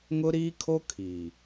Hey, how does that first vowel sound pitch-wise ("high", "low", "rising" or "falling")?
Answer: high